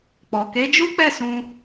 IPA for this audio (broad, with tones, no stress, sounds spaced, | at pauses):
k͡p ɔ˨ k e˨˦ d͡ʒ u˦ k͡p ɛ˦˨ s ũ˧